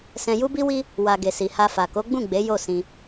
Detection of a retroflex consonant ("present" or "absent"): absent